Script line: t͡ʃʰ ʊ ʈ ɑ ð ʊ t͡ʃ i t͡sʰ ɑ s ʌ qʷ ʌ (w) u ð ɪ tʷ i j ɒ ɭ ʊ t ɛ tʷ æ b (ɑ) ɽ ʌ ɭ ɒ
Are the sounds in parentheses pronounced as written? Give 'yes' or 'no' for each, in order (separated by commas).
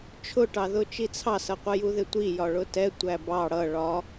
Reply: no, yes